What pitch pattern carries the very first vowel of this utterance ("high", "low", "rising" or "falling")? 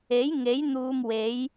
rising